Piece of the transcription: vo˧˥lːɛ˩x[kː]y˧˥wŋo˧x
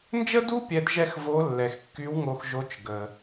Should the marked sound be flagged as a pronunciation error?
no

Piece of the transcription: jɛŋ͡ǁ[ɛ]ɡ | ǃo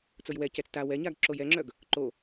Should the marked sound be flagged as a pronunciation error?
yes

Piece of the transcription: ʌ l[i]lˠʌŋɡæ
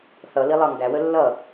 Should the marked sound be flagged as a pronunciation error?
no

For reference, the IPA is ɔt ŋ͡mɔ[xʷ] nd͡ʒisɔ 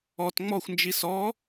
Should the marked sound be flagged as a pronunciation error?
no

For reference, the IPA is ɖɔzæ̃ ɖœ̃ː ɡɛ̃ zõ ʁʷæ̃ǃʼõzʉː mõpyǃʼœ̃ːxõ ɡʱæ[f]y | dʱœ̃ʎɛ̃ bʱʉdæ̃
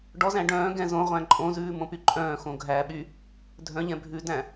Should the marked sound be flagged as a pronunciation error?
yes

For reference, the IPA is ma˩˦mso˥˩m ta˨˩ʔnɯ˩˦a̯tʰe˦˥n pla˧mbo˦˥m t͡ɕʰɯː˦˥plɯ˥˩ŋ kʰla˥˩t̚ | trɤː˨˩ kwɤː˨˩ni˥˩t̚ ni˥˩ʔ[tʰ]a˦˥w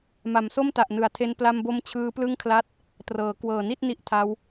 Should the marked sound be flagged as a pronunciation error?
no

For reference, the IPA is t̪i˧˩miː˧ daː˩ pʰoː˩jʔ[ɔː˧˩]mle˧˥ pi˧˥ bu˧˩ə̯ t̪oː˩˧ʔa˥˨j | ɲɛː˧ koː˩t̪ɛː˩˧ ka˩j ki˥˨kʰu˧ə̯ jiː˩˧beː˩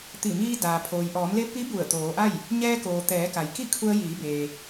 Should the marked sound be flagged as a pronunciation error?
yes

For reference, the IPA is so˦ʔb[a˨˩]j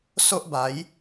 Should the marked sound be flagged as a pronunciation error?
yes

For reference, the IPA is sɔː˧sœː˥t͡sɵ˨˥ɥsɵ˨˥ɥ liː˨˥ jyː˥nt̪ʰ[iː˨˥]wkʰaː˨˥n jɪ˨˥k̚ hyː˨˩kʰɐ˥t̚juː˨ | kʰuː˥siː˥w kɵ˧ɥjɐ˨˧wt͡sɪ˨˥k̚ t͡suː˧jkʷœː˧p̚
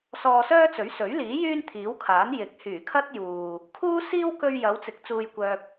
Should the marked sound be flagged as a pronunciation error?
no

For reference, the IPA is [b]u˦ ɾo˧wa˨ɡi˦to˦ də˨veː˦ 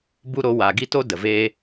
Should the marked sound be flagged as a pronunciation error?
no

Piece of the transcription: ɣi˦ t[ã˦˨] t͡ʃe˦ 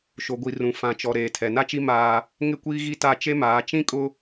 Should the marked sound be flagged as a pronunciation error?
yes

